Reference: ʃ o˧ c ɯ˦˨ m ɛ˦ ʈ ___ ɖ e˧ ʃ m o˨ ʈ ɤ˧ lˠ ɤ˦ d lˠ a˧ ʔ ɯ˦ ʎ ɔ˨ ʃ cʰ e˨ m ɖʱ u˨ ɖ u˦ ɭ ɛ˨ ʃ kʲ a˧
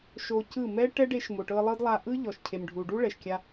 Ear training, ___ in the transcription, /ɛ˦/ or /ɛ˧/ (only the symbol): ɛ˦